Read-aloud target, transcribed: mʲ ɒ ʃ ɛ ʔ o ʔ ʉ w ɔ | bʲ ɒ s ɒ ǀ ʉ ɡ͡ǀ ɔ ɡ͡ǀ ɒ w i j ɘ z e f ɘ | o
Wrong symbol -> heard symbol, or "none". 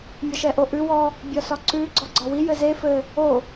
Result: none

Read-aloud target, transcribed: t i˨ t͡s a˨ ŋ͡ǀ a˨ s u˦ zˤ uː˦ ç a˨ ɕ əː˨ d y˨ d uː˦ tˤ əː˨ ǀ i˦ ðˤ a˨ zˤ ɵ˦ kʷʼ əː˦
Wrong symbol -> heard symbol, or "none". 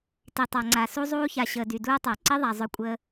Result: t͡s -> tˤ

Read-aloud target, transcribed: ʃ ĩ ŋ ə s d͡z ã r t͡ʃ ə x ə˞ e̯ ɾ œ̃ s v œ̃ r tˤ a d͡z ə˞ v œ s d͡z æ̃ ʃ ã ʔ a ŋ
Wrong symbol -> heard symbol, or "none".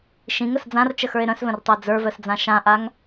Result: æ̃ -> ã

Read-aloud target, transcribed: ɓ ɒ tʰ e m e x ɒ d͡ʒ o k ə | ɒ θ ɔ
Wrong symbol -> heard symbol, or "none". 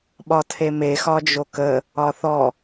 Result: none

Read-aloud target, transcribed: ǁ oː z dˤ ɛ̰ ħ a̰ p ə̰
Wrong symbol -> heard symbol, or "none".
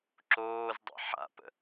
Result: none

